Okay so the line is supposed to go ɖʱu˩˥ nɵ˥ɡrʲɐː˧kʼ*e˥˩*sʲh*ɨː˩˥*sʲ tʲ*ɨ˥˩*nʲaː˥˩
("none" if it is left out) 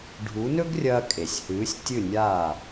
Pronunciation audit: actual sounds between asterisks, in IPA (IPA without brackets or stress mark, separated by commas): e˩, ɨː˩˥, ɨ˥˩